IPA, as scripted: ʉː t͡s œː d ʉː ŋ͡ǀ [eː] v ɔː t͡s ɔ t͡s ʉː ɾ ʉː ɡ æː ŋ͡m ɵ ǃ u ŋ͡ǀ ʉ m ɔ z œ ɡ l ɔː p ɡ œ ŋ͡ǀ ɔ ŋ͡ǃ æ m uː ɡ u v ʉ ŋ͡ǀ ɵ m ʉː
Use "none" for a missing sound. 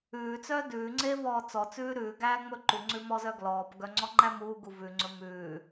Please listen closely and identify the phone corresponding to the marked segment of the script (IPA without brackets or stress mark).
eː